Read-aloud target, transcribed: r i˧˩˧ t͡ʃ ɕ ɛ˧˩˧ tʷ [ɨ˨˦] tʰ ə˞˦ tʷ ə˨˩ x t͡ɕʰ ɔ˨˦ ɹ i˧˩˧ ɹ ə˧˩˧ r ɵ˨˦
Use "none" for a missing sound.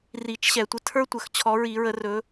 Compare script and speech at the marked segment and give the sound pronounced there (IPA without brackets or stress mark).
ə˨˦